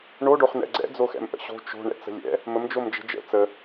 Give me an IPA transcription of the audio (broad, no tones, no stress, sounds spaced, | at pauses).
ɳ o ɖ o χ n ɛ̰ ɡ͡ǀ ɛ̰ d͡z o x ɛ̰ m ʔ ə̰ ɕ o̤ t͡ʃ o̤ ɳ ɛ̰ t͡s ə̤ lʲ ɛ̰ | m ə m d͡ʒ o m d͡ʒ ə̤ d͡ʒ ə̰ t͡s ə